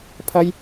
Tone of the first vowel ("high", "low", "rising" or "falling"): high